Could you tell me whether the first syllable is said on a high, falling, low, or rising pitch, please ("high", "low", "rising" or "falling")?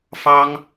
high